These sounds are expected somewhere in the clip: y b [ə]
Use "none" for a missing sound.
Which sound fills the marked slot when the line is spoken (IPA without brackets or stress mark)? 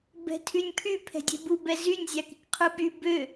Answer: ø